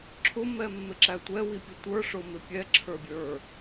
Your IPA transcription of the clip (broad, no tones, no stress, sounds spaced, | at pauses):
ǁʰ ʊ m ɛ mː ɪ ǁ æ tʷ ɛ w i pʲ ə tʷ ə˞ ʂ ʊ m ɪ pʲ ɛ ǁʰ ə˞ bʲ ə˞